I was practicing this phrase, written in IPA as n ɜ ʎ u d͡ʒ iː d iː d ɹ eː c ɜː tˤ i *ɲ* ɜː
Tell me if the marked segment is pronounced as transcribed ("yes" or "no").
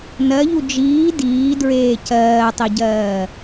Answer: no